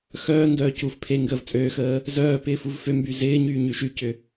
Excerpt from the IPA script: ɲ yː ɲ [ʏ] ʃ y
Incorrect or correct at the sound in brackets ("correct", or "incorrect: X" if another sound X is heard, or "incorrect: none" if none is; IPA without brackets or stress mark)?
incorrect: y